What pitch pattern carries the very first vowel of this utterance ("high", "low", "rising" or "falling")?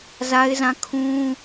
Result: high